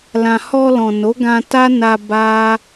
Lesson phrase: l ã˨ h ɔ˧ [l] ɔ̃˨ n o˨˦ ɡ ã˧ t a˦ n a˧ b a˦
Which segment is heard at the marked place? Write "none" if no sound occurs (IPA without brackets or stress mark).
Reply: l